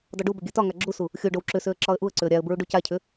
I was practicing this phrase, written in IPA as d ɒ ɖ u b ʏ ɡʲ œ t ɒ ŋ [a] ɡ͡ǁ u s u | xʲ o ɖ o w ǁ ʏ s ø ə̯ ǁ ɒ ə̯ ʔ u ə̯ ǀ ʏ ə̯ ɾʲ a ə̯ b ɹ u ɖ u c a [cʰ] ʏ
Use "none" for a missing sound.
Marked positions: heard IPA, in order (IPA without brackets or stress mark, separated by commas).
a, cʰ